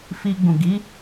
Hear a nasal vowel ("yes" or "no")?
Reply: yes